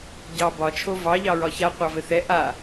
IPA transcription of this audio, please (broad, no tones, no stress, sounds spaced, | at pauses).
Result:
ɟ ɑ b ɒ t͡ʃʰ o v ɑ ʎ ɑ ɹ ɒ ç a qʷ ɑ v ɘ θ ɛ ʔ a